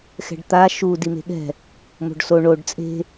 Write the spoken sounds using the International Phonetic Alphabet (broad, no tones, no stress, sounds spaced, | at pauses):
x ɛ̤ ɖ t̪ a ʃ u d i m e̤ ɠ ɛ̤ | m o̤ ɖ s o ɳ o ɖ t͡sʼ e̤